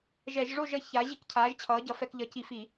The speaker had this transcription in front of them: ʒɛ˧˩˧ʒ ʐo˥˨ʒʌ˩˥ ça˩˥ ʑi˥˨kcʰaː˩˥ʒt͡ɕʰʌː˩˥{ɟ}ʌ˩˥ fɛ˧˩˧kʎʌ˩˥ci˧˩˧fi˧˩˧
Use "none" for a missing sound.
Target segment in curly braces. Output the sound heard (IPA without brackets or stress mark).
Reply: ɟ